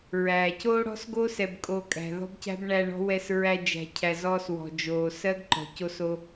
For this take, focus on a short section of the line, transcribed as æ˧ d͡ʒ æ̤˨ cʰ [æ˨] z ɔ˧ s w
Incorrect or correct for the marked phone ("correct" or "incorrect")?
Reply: correct